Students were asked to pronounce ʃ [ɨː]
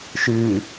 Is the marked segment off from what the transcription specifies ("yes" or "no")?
no